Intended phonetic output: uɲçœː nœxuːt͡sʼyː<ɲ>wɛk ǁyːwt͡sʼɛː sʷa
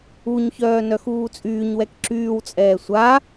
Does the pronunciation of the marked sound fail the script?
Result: no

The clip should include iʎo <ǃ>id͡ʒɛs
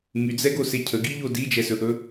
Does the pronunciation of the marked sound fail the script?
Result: yes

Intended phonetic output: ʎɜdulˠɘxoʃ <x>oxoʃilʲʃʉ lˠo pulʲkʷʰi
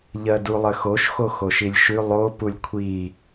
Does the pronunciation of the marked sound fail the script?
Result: no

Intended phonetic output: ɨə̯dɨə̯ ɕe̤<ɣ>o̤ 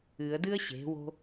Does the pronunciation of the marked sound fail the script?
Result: yes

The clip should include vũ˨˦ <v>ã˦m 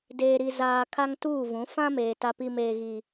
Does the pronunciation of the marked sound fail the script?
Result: yes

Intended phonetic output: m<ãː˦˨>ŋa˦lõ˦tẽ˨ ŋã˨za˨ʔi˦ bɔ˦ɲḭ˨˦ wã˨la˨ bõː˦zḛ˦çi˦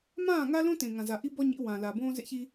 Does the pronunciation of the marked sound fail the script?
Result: no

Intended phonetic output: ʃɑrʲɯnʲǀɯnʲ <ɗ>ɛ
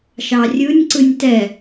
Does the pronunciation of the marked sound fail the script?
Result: yes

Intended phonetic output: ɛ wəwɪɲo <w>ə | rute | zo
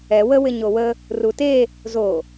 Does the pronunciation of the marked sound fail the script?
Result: no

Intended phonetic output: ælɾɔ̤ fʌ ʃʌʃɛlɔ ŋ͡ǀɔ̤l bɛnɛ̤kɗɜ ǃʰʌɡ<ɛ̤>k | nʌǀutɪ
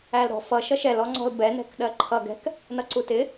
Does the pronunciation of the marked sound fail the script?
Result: no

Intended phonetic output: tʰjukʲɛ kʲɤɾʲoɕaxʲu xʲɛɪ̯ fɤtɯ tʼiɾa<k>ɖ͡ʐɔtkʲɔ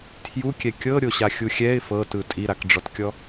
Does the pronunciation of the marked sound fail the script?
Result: no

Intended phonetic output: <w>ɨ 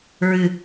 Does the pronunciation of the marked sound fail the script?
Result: yes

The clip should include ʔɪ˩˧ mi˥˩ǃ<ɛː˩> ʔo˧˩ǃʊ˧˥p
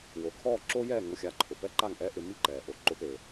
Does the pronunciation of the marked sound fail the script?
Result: no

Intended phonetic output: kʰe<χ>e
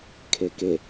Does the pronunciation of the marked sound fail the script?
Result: yes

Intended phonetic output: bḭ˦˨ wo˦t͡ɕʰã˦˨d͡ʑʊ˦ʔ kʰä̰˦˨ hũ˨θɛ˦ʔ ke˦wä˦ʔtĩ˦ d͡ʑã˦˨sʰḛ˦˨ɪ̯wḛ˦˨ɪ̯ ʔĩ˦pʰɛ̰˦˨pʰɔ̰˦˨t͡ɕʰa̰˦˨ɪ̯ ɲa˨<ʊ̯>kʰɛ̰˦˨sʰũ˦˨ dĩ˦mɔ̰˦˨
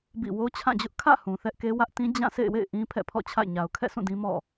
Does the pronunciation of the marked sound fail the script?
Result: no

